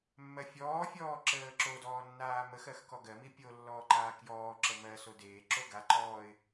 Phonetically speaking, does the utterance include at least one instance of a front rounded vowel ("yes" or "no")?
no